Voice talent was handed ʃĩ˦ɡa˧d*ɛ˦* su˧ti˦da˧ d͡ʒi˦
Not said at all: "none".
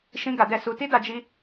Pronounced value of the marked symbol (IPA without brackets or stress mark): ɛ˦